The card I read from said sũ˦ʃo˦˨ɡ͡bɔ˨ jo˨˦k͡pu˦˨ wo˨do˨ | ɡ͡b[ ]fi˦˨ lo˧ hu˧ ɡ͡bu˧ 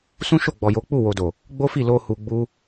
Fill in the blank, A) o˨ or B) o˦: B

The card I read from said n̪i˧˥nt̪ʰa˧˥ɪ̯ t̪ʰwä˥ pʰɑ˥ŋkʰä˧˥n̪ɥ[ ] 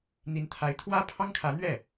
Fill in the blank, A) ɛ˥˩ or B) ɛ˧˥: A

